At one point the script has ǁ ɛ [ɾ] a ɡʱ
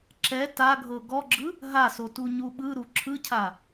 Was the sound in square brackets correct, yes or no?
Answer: no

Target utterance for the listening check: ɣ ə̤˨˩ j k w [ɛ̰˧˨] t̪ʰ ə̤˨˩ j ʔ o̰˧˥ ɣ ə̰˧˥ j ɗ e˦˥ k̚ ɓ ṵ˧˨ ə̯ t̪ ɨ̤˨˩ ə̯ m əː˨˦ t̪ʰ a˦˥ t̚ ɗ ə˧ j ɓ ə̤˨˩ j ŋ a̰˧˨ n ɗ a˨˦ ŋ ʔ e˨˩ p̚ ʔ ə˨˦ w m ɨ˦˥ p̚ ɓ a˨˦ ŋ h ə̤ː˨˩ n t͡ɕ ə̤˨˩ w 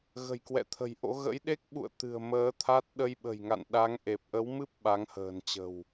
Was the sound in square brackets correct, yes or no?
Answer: yes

